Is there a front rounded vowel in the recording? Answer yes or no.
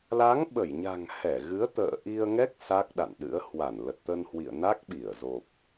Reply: no